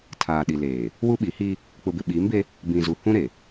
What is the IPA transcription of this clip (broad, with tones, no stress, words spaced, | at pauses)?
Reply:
tʰaː˨ɗi˨leː˨ | wu˦ɓi˨˦hi˦ | k͡pʊ˨bɪ˨ɓiː˨˦mbe˦ | bĩ˨zu˨ hũ˦ɾe˨